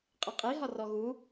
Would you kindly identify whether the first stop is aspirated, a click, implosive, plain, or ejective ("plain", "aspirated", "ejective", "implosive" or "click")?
ejective